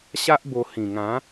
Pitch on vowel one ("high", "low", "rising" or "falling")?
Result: high